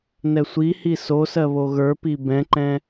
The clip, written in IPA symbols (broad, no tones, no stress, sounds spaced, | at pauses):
n ɛ sʷ i h i s o s ɜ β o ɣ ə˞ p i b ɛ̃ ǃ ɛ̃